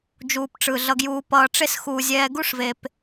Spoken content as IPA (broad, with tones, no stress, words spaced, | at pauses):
d͡ʒuː˨pʈ͡ʂɯ˨ ɮʌ˧ɡjuː˧ pʌː˧ʈ͡ʂe˦sxuː˧ zʲɛː˧ɡu˦ʂve˧p